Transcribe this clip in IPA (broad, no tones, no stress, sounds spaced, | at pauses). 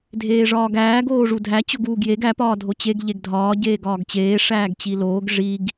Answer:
dʱ eː ʐ ɒː ɡ æː ɡ oː ʐ u dʱ æ t͡ɕ o ɡ uː ɡ j e ɡ æ p ɒː dʱ o t͡ɕ e ɡ ʎ e ɡ dʱ ɒː ɟ eː ɡ ɒː ɡ t͡ɕ eː ʂ æː ɡ t͡ɕ i l oː ɡ ʐ i ɡ